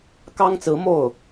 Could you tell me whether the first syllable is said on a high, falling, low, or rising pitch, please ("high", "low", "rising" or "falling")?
high